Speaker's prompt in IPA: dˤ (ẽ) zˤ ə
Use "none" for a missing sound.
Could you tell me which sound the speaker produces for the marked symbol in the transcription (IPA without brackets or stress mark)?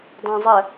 ẽ